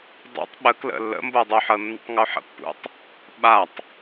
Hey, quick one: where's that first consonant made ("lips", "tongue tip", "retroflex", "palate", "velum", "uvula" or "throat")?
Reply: tongue tip